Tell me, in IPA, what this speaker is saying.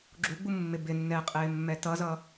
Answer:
ɡ͡ǁuɡ͡bumːɪ bɪnːɛːqʼɪːmːɛ tʌzʌ

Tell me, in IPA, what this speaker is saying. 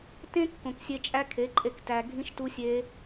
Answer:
tẽ˦ kːõ˨ksʲe˧ t͡ʃʼæ˦kʰe˨˦ǃʼe˧k tæ˨ ɡʱĩ˦ʃtu˦sʲe˦

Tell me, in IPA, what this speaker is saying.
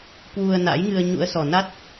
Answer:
kwu˧ə̯na̰˧˥jŋɨ˧ə̯ ɲṵ˧˥ə̯sɔ˨˩ na˦˥t̚

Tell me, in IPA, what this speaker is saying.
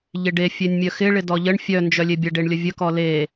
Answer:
ʎɪɖe fʲenʲmʲœxɪ ɭɪdɔʎəɳ fʲœ nd͡ʒœlʲebʲə ɖeɳlʲəvʲə kɔle

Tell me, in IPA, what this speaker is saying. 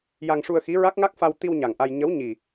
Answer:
ja˧ŋʂu˧ə̯xi˧˥ ɹa˦˥k̚ŋa˦˥k̚fa˧w t̪i˧w ɲa˨˩ŋʔa˧j ɲə˧˥w ɲi˨˩

